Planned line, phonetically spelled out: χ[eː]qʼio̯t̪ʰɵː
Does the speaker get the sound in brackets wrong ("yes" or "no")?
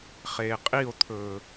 no